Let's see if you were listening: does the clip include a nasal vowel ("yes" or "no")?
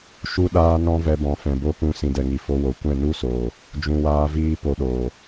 yes